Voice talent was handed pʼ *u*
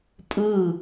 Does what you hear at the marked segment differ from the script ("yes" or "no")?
yes